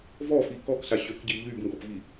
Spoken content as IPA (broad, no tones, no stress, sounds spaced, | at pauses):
v ɔ f i k ɔ k s a ɕ ø k ɟ i ʎ y b ŋ ɡ ɔ p v i